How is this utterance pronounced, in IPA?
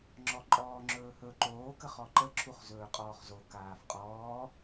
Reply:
ŋ͡ǁ ɔ ǃʼ ɔː ŋ͡ǁ ɵː h ɵ ǃ oː k ə χ ɔ ǃ ə ǁʰ u χ z ɵː qʼ ɔː χ z o k aː f qʼ ɔː

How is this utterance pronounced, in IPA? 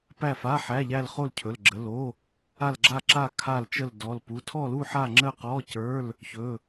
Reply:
p æ˥˧ f a˧˥˧ ħ æ˧˥˧ ʎ æ˥˧ l χ o˥˧ l cʰ ɵ˧˥˧ l ɡ͡ǁ ə˧˥˧ l o˧˥˧ | a˥˧ l ɡ͡ǁ a˥˧ ǁ a˥˧ kʰ a˥˧ l t͡ʃ ə˥˧ l d ɔ˧˥˧ l p u˧˥˧ tʰ ɔ˥˧ l u˥˧ ħ a˥˧ ŋ͡ǁ ə˥˧ q ɔ˧˥˧ c ə˞˧˥˧ l | ç ɵ˧˥˧

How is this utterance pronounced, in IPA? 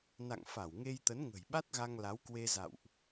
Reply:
n a̰˧˨ ŋ f a˧˩ w ŋ e˧ j t̪ ə˨˦ n ŋ ə̤˨˩ j ɓ a˦˥ t̚ ɣ a˧ ŋ l a˨˦ w k w e˧ z a̰˧˨ w ʔ

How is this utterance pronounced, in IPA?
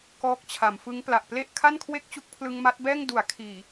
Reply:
k ɔː˦˥ k̚ t͡ɕʰ a˩˦ m f ɯ˦˥ ŋ p l a˨˩ ʔ p l e˥˩ ʔ kʰ a˥˩ n kʰ w e˥˩ k̚ t͡ɕ u˦˥ k̚ pʰ l ɯ˧ ŋ m a˦˥ t̚ b ɛː˥˩ ŋ d u˩˦ a̯ kʰ iː˨˩

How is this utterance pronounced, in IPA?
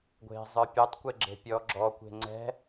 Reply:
ɡʷ e̤ zˤ ə˞ pʲ ə˞ tˤ kʷ e ɡ͡ǁ e̤ pʲ ɔ ɡ͡ǁ ɔ kʷ e̤ ŋ͡ǀ ɛ̤

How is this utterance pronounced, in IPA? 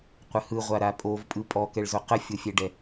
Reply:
qʷ ə h ɯ ʁʷ a ɾ a pʼ o v pʼ ɯ pʼ ɔ k ɛ ɭ z o q ə fʲ o fʲ ɛ ɖ ɛ

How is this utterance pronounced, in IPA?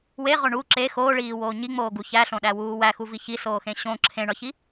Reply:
w e ʁ o ɳ u ǁ e x oː ɭ iː w oː ɲ i ŋ͡m oː ɡ u ç æ ɬ õ ɗ æ w uː w æ x u v i ç i s oː x ẽ ɕ õ ǁʰ ẽ ɳ ɒ ç i

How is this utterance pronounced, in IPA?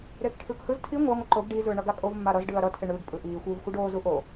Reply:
ɾ eː k ʈʰ ɯː k h ɯ z tʰ i ŋʷ a ŋʷ ɯ ǃ o ɡ ɖ i z ɯː ɳ ʌ ɡ a kʼ o v mː a ɾ ʌ z ɖ ɯː ɐ̯ ɾ ʌ tʰ e ɳ ɯː ɡ pʼ ɯ ʔ iː xʷ ɯː v xʷ ɯ ɖ oː z u ʔ o

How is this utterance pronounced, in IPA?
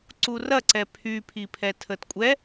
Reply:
ǀ u r ɐ ǀ ɛ pʰ y pʰ i pʰ ɛ tʰ ə t kʷʼ ɛ

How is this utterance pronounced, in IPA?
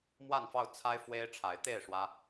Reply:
m w a˥˨ n f ɑ˥˨ ʊ̯ t͡sʰ a˦ ɪ̯ f w e˦ ɪ̯ ʈ͡ʂʰ a˨˦ ɪ̯ t̪ e˥˨ ɪ̯ ʂ w ä˦

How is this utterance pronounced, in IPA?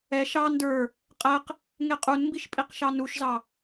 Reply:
ɛ ʃ ɑ n d ə˞ | qʼ ɛ q | ŋ e qʼ u n m b i ʃ pʼ i q ʃ ɑ n u ʃ z ɑ

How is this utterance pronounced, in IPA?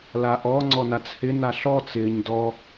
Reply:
l a ʔ ɔ ŋ͡ǀ ɔ n a t͡s h ɪ n a ɬ ɔ t͡s ɪː ɲ d ɔ

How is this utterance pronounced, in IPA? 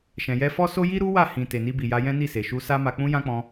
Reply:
ʃ ɛ̃˨ j ɛ˧ f ɔ˦ s o˦ j i˦ ɾ u˦ w a˦˨ h ĩ˨ t e˨ n i˧ b i˨ j a˧ j ɛ̃˦ n i˦˨ s e˨ ʃ u˧ s a˦ m a˧ k͡p ũ˧ j ã˦ k͡p ɔ̃˧

